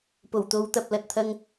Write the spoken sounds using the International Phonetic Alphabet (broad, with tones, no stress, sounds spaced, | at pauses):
p o˨˩ w t̪ o˨˧ w t̪ ɐ˨ p̚ l ɐ˨ t̚ t̪ʰ ɐ˧ ŋ